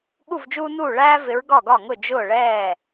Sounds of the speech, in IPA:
ɠ u˥˩ v d͡ʒ uː˦ n uː˥˩ ɭ æː˦ v ɪ˨˦ ɹ ɡ ɒ˥˩ ɡ ɒ˥˩ ŋ ʊ˥˩ d͡ʒ ʊː˥˩ ɭ ɛː˥˩

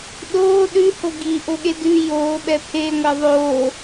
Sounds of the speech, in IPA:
ɗ oː ɗ ʉ h o ɡ i ʔ o ɠ e d ʉ j oː ɓ ɛ pʰ e ŋʷ ɛ ðˤ oː

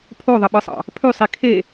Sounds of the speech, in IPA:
pʰ o ðˤ ə ɓ ɯ sˤ ɑ̰ | pʰ ʉ sˤ i kʰ e

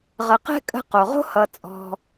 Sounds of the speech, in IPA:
ʁ ə˨ q ɛ̤˦ kʼ ə̤˦ q o˩ ʁ o̤˦ h ʌ˨ t͡sʼ ɔ̤˨

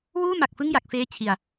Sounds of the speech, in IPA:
w uː˥˩ m a˨˩ k̚ f ɯ˥˩ ŋ j a˨˩ k̚ f eː˦˥ t͡ɕʰ i˨˩ a̯

